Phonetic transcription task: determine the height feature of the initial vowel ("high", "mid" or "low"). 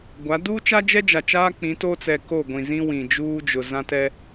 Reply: low